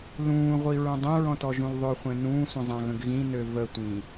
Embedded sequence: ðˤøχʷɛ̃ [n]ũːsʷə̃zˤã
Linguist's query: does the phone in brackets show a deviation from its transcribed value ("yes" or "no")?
no